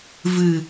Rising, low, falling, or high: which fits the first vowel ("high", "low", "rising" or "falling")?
low